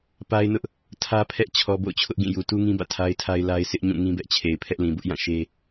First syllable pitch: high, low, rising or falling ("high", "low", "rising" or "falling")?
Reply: high